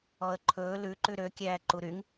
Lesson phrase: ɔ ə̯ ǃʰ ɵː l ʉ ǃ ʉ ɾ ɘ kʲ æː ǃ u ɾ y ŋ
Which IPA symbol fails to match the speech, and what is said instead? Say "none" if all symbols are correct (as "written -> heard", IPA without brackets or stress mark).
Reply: ɘ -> ø